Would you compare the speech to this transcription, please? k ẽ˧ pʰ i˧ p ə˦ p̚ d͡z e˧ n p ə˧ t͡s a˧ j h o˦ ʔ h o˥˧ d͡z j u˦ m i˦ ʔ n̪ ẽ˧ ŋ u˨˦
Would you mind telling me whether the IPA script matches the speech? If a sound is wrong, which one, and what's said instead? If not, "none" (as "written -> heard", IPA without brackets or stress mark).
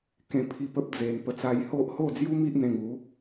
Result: none